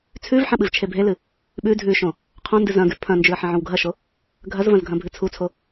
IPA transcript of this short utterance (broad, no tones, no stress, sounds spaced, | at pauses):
t͡sʰ ʉ v ħ ɐ̃ ɓ ɨ v t͡ʃʰ e bʱ e l ɨ | ɓ ʉ dʱ ʉ ʃ õ | qʰ õ n d ɨ z ɐ̃ ɡ ʉ pʰ ɐ̃ n d͡ʒ ʉ ə̯ ħ ɐ̃ ʕ õ w ɡʱ ɐ ʃ o | ɡʱ ɐ z v ɐ̃ z ɡʱ ɐ̃ bʱ ɨ t͡sʰ u t͡sʰ o